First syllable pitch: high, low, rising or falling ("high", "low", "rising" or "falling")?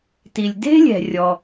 low